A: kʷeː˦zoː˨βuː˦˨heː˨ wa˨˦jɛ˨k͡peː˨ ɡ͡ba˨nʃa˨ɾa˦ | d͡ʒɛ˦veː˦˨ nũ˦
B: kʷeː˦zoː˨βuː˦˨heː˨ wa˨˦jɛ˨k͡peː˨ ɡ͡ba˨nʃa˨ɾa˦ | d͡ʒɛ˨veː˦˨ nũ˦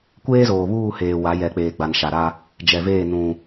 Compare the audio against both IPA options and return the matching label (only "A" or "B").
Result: B